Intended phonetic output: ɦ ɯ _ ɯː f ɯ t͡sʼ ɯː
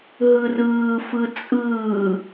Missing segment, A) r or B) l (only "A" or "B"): A